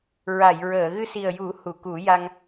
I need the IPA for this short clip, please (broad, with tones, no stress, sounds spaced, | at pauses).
ɹ a˨˩˨ j ɹ əː˨˩˨ ɣ ɨ˧ s i˨˩ ə̯ j u˨˩˦ h u˨˩˨ k u˨˩˦ j a˧ ŋ